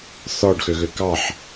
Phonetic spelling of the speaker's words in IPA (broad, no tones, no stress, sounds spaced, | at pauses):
θ ɔ ɖ x ø ɣ ø k ɑ ħ